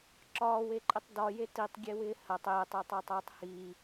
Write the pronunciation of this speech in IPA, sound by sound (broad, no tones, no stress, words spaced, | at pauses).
ǁɒːweǃʼɪtˤ dɒje titˤɡʲewɪː hɐtˤ ɪːtˤɪːtˤatˤɐːtˤ hiː